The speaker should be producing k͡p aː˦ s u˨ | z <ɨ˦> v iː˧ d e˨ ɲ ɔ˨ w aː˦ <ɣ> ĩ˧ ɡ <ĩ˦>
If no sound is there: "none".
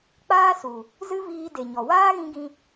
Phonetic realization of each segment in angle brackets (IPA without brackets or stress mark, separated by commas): ɨ˦, ɣ, ĩ˧